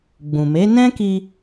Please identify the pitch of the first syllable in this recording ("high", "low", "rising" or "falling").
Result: low